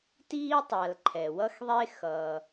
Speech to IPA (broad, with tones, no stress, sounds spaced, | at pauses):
t iː˥ tˤ a˩ l ǃʰ ɛ˩ w ʌ˥ x ðˤ e˥ x ʌː˩